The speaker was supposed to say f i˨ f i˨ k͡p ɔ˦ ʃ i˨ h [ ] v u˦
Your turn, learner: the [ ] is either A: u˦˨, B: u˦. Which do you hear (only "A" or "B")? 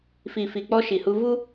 B